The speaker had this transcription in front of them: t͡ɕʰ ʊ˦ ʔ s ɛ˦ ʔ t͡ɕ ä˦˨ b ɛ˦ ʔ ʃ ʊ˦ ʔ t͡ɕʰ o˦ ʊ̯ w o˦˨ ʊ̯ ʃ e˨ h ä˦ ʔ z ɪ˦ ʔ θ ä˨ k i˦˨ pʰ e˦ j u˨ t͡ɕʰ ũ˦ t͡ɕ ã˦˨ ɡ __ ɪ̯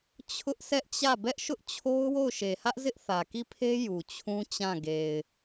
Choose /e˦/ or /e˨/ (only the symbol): e˨